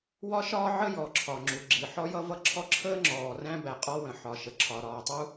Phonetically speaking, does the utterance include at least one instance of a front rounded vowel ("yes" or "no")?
no